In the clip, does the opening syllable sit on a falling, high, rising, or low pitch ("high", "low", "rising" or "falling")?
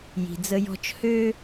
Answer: low